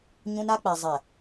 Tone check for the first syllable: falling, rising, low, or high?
high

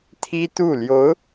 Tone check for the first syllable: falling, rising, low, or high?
high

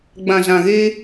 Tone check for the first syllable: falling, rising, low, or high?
low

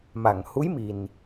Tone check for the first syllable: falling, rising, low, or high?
low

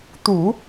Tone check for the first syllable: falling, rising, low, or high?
low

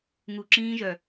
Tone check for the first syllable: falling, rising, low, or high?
low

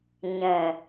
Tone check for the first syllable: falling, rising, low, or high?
low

